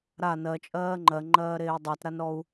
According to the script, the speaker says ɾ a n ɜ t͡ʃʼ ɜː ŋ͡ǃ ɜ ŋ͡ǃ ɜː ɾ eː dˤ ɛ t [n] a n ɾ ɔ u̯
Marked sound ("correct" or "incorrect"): incorrect